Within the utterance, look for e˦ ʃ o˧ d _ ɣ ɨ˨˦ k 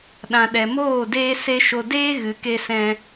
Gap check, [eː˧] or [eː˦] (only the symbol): eː˦